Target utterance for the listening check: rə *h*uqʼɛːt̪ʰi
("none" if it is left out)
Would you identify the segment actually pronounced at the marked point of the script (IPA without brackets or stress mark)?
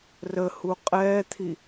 h